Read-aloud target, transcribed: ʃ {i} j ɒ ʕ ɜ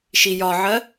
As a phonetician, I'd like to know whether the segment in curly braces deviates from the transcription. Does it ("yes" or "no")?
no